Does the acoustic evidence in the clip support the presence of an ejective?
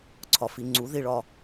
no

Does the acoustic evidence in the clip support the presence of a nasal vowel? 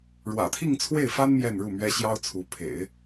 no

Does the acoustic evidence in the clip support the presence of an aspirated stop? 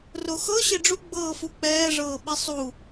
no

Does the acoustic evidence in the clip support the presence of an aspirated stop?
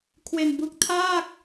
yes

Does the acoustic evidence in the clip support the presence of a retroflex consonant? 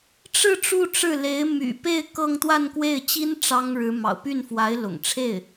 yes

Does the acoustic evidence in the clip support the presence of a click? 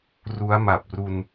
no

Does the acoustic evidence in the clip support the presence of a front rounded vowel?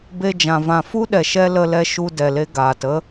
no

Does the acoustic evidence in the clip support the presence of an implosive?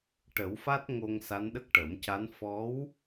yes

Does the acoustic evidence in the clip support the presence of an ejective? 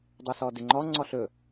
no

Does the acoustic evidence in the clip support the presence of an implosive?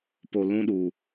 yes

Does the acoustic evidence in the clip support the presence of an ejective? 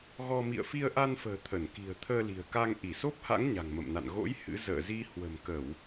no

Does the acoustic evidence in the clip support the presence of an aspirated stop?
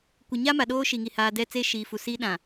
no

